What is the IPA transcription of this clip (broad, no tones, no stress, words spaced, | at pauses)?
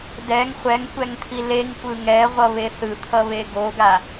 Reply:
dɛŋ χʷɛŋkʷɛŋt̪ʰi leŋkʷɯ ŋɛʁʷʌβe θɯt̪ʰʌβe ɡoɡa